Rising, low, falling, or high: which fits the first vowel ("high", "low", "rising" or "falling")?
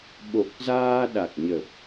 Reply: low